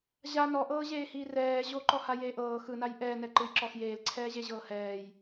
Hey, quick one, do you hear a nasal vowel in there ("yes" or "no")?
no